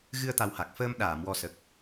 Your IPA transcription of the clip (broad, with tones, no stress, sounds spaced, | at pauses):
ɣ ɨ˧ ə̯ t̪ a˨˩ w h a˨˩ k̚ f əː˧ m ɗ aː˨˩˨ m w ɔ˨˩ s ə˨˩ k̚